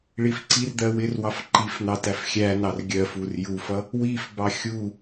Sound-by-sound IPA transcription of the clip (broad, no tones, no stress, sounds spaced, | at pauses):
ɭ i f ǀ i r d̪ ɜ w ɪ r w ɑ f ǃ i f n̪ ɑ t æ f xʲ æ n ɑ r ɡʲ ɜ f u r j u f ʌ | w i f b ɑ xʲ u